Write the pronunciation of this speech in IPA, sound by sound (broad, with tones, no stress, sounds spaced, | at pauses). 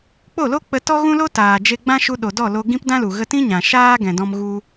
k͡p o˦˨ l o˦ k͡p ə˧ t ɔ˦ ɣ ũ˦ l o˦ t aː˨ d͡ʒ e˧ ɡ͡b ã˦ ʃ u˧ ɗ o˨ d ɔ˦˨ l o˧ ɡ ĩ˦ p d ã˦ l u˨ ɣ ə˧ t ĩ˦ ɲ ã˨ ʃ aː˦ ɡ ɛ̃˨ d ɔ̃˧ m ɣ u˧